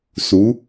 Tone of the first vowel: rising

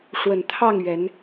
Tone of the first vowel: low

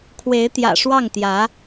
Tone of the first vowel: rising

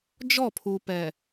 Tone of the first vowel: falling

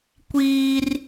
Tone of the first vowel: high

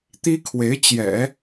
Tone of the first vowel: high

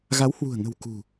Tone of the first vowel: rising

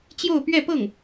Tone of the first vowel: falling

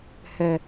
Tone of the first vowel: low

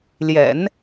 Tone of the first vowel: low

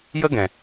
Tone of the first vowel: high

